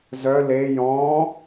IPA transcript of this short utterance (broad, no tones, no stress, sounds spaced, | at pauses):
z œ l e j ɔ̃